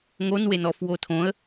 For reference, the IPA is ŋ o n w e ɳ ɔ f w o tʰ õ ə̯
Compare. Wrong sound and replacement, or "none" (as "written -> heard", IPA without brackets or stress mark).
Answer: ɳ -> n